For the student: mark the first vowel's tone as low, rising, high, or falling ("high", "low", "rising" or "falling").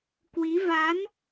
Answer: rising